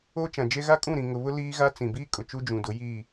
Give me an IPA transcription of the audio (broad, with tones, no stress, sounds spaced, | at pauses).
oː˦ t͡ʃ ã˨ d͡ʒ e˦ ɣ a˦ kʼ ũ˦˨ ɾ ĩ˨ ŋ ʊ˨ β ʊ˦ l iː˦ ɣ a˦ t͡s ĩ˨ b iː˦ kʼ ʊ˨ t͡ʃ u˦ d͡ʒ ũ˨ d ʊ˨˦ j iː˦˨